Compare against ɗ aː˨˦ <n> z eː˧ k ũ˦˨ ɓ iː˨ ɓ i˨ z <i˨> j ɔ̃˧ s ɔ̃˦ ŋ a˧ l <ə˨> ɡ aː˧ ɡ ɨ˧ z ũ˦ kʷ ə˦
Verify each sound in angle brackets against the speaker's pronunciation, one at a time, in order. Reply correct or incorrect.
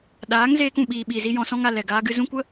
incorrect: ŋ, incorrect: i˧, incorrect: ɛ˨

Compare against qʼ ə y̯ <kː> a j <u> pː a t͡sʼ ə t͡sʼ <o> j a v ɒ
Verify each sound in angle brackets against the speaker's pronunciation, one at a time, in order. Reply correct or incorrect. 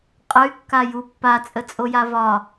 correct, correct, correct

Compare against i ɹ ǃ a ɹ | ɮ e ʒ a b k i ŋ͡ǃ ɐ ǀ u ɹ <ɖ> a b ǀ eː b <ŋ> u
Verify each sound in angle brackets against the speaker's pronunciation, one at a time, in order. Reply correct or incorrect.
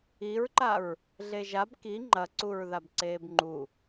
incorrect: ð, incorrect: ŋ͡ǃ

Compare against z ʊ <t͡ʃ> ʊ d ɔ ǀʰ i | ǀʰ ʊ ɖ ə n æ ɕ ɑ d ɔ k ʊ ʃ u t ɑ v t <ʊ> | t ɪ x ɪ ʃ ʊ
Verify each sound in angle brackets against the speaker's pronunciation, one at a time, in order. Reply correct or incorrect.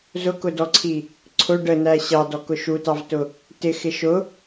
incorrect: k, correct

